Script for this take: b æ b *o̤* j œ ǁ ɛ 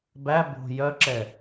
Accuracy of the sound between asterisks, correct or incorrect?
correct